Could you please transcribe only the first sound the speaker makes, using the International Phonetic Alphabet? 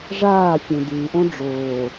ʐ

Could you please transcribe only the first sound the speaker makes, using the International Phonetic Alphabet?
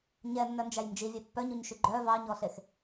ɲ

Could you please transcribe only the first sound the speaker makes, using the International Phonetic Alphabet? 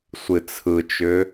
sʷ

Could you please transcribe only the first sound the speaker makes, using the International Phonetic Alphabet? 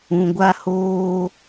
ũ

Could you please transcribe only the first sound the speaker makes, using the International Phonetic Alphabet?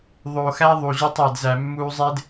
ðˤ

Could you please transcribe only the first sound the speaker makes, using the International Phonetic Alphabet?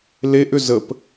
l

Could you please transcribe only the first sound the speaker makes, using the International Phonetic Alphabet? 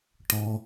ʈ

